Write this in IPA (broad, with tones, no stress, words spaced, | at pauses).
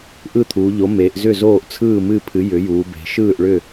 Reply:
ʔɯ˥˩t̪ʰuː˩˧ʎo˩˥meː˩˧ʔ zʏ˥˩ zoː˥˩ʔt͡sʰɯː˥˩mɨ˥˩pʰɨ˩˥ jʏ˩˥juː˩˧be̤˩˧ ʃɯː˥˩ʔ ɭʏ˥˩